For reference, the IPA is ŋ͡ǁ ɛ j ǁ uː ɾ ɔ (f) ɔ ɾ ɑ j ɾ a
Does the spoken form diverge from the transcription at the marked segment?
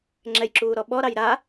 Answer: yes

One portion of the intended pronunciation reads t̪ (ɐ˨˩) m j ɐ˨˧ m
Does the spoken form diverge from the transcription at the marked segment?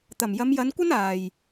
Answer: no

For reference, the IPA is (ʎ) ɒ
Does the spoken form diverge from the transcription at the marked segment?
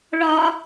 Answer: yes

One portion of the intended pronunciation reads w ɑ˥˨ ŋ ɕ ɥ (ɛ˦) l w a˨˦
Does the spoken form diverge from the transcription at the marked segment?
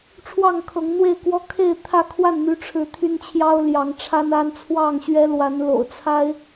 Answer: no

